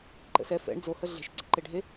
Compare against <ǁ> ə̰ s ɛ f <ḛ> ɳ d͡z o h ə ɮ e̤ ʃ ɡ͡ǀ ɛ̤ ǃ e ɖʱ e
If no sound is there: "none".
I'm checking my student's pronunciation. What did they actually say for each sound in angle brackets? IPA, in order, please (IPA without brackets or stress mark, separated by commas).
ǃ, ɛ̰